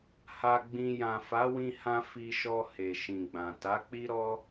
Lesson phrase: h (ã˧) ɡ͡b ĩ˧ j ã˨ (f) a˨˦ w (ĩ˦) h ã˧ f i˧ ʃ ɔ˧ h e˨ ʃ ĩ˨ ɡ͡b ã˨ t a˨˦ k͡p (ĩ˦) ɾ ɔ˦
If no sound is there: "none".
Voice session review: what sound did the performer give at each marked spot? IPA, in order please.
a˧, f, ĩ˧, i˦

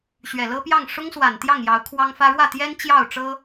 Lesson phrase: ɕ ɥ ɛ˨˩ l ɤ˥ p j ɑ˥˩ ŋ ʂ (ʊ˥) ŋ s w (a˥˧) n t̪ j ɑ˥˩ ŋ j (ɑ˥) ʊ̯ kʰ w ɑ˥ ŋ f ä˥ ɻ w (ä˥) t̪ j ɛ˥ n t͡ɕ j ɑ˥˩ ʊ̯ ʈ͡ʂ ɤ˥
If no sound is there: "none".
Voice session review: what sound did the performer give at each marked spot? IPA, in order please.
ʊ˥, a˨˩, ɑ˧˥, ä˥˩

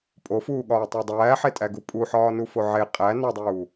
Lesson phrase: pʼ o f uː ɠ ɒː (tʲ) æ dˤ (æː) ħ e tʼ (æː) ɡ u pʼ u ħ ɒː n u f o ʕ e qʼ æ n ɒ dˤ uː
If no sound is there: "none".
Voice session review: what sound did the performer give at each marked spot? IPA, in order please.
tˤ, æː, æ

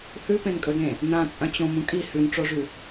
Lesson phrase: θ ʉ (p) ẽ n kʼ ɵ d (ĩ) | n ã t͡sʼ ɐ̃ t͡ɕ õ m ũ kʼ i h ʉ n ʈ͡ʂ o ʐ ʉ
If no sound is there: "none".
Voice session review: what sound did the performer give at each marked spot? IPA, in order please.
p, ẽ

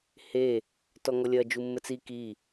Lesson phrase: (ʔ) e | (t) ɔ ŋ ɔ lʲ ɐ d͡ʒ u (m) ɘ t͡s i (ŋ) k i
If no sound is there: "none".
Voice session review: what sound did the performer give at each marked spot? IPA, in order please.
h, t, mː, none

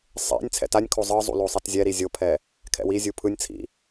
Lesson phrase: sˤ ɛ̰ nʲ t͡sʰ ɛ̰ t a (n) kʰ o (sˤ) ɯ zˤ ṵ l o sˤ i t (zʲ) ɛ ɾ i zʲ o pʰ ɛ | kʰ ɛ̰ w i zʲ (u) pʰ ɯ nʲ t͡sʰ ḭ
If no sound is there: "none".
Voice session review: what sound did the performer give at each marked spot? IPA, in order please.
nʲ, zˤ, zʲ, u

